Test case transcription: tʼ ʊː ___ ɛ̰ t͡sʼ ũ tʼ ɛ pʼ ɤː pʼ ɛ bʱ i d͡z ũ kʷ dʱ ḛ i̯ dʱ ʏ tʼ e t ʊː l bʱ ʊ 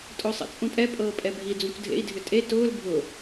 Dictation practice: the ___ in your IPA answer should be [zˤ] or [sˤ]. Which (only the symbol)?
sˤ